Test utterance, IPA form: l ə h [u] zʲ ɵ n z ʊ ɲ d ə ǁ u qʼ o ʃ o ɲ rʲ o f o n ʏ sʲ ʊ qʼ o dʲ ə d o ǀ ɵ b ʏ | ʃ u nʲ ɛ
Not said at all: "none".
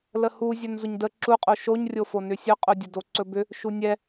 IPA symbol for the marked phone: u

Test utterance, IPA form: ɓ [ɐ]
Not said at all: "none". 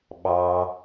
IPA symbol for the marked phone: ɑ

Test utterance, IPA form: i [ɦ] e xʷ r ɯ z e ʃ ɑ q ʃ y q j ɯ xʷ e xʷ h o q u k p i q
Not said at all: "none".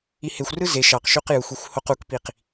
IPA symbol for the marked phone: h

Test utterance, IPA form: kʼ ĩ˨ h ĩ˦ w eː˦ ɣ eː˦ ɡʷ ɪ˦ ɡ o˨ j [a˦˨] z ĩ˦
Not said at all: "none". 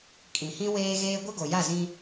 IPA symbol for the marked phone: a˦˨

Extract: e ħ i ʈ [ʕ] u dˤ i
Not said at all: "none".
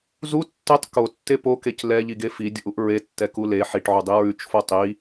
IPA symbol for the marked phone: ʕ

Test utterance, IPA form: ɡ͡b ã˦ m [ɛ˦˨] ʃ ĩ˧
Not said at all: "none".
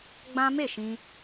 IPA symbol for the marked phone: e˦˨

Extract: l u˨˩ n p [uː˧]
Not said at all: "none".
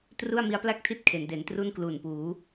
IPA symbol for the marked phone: uː˩˦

